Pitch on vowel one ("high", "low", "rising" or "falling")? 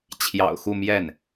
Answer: low